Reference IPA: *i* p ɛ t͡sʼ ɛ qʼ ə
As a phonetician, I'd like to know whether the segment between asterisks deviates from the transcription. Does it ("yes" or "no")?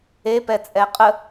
yes